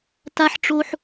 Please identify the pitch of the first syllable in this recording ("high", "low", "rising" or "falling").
high